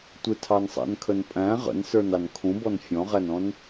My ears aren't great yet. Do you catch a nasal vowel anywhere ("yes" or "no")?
yes